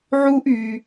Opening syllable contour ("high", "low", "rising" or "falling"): high